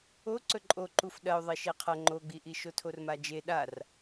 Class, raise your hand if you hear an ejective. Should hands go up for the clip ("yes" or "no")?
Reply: yes